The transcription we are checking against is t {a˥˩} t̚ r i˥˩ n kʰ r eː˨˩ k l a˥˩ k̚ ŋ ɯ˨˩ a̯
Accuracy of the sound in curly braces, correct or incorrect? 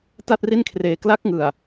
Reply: correct